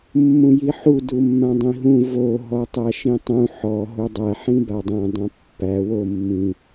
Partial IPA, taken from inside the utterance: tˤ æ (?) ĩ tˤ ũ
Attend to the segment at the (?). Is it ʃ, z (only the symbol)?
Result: ʃ